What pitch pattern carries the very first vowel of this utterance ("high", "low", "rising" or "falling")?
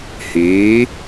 rising